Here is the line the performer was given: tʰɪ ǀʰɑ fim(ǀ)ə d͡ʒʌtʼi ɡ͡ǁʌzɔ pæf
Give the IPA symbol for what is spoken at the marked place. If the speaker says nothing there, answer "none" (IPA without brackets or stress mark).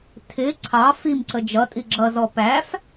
ǀ